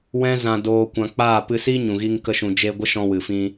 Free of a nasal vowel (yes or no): no